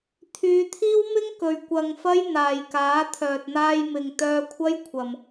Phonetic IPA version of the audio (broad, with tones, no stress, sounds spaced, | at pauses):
t̪ʰ yː˨˧ t̪ʰ iː˥ w m ɪ˥ ŋ k ɵ˨ ɥ kʷ ɐ˧ ŋ f ɐ˥ j n̪ aː˨ j k aː˨˥ t̪ʰ œː˨ t̚ n̪ aː˧ j m ɪ˨ ŋ t̪ œː˧ kʷʰ ɐ˥ j kʷʰ ɐ˨ m